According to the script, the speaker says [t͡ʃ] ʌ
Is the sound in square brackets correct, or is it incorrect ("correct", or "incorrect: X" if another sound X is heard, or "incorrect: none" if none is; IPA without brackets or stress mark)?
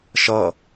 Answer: incorrect: ʃ